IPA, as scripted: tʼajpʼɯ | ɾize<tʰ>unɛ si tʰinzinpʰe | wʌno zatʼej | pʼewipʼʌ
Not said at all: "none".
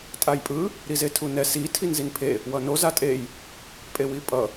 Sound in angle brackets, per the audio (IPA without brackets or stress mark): tʰ